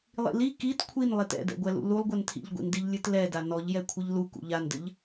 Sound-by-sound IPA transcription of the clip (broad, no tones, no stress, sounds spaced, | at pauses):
lˠ ḭ l i k i t kʷʰ i n lˠ i t ɛ̰ d ɛ̰ ɡʷ ɛ l ṵ l u lˠ ɡʷ ɛ n tʰ ḭ ʎ ɡʷ ḭ n d i ʎ lʲ ɨ t l ɛ d a n ɔ ʎ j ɛ kʷʰ ɨ ʎ l u k ṵ ʎ a n d ɘ ʎ